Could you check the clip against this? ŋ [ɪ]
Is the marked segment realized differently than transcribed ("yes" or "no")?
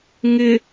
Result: no